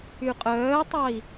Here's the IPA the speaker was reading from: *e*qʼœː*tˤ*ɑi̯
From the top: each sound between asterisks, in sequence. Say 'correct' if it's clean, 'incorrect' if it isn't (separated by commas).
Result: incorrect, correct